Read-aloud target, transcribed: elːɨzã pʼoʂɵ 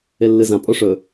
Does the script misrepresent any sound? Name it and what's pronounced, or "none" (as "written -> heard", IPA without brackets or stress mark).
none